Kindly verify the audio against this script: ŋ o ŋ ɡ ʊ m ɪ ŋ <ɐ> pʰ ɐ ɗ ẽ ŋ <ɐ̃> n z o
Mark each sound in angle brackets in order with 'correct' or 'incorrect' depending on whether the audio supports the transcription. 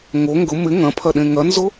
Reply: incorrect: ɐ̃, incorrect: ɐ

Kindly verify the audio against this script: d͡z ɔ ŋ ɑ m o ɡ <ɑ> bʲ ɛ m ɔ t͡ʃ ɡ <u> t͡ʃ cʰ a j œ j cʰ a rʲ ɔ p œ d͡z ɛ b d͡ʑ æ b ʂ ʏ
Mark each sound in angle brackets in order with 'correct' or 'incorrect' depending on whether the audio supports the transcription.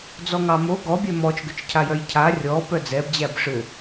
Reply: incorrect: ɔ, incorrect: ʏ

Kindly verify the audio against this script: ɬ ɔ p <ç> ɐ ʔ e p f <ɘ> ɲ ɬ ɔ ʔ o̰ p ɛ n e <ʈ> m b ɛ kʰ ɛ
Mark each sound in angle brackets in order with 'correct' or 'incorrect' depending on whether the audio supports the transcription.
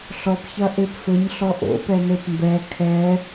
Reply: correct, correct, incorrect: p

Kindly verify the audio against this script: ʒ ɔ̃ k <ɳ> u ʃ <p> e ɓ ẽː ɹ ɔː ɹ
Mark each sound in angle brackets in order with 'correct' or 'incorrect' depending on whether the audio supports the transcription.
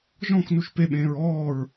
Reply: incorrect: n, correct

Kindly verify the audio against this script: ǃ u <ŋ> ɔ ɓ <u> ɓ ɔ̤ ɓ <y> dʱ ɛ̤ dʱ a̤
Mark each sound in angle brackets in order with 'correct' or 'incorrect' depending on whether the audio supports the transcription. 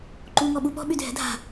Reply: correct, correct, correct

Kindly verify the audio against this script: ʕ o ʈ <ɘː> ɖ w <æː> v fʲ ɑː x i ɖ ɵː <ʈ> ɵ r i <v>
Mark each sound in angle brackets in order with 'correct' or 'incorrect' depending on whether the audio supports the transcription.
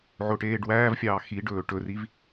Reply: incorrect: eː, correct, correct, correct

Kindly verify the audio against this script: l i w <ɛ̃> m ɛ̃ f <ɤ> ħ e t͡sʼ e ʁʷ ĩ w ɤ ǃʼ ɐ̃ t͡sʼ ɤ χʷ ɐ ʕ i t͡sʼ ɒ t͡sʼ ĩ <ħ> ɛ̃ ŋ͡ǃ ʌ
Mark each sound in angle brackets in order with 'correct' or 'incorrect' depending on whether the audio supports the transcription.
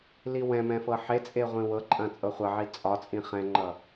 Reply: correct, correct, incorrect: χ

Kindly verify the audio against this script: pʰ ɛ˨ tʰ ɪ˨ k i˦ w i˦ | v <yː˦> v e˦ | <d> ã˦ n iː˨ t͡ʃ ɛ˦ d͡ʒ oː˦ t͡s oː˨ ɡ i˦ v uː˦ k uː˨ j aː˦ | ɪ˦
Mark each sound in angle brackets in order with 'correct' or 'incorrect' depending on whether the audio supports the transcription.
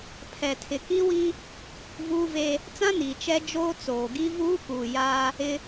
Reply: incorrect: uː˦, incorrect: t͡s

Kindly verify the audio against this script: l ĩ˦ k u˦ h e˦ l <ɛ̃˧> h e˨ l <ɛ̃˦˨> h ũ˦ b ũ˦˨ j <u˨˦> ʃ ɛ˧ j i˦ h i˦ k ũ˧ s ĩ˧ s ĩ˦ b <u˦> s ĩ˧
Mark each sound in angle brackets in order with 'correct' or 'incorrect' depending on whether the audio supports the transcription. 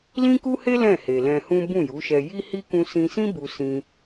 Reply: incorrect: ɛ̃˦˨, incorrect: ɛ̃˧, correct, incorrect: u˧

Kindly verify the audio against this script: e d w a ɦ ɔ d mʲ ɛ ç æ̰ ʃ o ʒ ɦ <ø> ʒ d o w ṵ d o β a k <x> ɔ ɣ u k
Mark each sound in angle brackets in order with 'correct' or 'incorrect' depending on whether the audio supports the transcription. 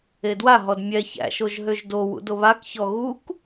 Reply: correct, incorrect: ç

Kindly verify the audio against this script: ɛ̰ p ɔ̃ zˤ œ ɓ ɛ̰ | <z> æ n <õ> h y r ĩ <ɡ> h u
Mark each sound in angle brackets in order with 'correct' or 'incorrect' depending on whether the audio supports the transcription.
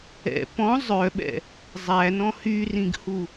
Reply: incorrect: zˤ, incorrect: ɔ̃, correct

